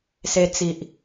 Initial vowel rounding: unrounded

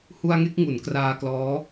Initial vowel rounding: rounded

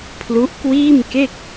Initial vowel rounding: rounded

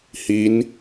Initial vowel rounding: unrounded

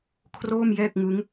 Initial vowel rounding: rounded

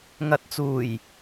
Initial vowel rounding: unrounded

